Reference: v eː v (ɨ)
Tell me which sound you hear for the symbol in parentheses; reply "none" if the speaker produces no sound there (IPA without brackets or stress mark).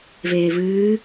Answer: ɨː